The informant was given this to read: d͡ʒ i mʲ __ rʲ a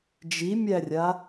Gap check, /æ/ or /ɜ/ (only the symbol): æ